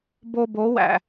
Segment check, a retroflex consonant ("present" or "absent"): absent